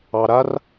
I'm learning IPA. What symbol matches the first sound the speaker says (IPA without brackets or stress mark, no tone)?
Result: ɑ